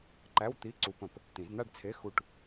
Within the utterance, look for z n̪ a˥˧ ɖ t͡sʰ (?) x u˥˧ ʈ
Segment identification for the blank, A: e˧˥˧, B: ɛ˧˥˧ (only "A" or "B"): A